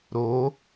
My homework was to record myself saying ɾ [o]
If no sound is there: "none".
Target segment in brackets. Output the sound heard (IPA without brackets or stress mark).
o